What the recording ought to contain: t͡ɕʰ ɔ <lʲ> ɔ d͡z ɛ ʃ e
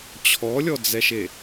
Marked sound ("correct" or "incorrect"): correct